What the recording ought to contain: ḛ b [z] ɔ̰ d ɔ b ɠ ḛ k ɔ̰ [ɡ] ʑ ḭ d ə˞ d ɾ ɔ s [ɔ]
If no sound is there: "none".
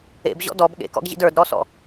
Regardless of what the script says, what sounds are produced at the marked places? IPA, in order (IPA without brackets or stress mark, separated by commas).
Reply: ʑ, ɡ, ɔ̰